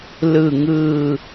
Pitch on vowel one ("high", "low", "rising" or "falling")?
low